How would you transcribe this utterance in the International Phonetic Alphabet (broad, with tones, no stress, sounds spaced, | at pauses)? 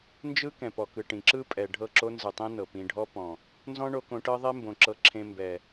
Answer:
n d͡ʒ ɯ˦ k ɛ̃˨ p ɔ˨ k ɯ˨ ʈ ĩ˨ ǁ ɯ˦ pʼ ɛ˨ ɖʱ ɤ˦˨ ǁ o˦ n z ɯ˨ tˤ ĩ˦ n ɤ˨ p ĩ˧ ɖʱ ɔ˦ p ɔ̃˨ | n z ɔ̃˦ ɳ o˧ k õ˧ ʈ ɤ˦ ðˤ e˦ m b õ˨ ǁ ɤ˧ ǁʰ ẽ˧ m b ɛ˨